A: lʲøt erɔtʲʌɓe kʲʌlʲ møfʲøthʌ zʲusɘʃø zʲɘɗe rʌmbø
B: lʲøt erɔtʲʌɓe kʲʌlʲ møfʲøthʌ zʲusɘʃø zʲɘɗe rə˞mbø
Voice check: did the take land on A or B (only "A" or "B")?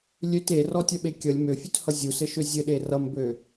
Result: A